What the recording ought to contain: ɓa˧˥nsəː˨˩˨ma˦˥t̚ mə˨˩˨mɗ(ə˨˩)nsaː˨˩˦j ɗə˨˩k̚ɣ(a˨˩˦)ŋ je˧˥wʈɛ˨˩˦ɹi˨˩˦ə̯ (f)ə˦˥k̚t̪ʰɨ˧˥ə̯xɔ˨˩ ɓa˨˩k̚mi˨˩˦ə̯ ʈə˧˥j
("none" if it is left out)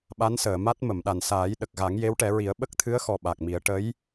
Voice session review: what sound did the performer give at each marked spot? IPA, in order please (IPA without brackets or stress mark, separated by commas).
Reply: a˨˩, a˨˩˦, ɓ